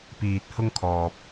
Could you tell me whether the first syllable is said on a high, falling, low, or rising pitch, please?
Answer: low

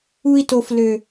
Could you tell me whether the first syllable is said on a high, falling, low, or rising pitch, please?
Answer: high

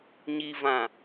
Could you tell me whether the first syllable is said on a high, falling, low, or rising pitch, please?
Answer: low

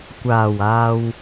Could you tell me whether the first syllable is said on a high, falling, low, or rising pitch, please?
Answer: low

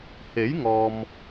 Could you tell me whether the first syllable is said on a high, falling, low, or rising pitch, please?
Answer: rising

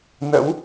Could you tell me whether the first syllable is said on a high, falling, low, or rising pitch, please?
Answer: rising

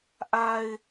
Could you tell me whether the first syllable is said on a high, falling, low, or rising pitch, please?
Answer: low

